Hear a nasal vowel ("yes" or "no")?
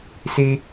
no